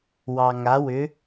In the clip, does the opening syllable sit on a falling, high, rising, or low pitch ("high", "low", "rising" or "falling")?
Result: low